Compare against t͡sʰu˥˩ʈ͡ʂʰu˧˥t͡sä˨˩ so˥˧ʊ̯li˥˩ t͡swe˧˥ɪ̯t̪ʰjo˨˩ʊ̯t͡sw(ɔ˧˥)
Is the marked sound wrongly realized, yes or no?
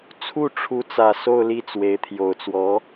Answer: no